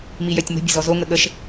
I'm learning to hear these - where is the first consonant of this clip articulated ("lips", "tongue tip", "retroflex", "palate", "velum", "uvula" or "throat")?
lips